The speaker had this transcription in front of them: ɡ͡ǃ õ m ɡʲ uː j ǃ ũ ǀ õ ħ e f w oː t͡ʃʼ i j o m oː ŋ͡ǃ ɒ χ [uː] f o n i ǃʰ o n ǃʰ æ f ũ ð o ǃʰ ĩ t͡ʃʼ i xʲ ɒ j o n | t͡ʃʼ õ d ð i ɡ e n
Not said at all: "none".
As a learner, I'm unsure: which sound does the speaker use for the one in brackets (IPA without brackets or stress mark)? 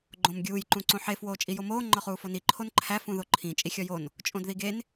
uː